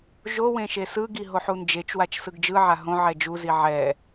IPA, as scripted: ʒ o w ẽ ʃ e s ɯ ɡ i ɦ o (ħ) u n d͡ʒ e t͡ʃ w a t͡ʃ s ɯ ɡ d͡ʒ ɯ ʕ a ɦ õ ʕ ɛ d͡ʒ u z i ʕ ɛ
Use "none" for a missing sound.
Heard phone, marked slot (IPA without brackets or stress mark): ħ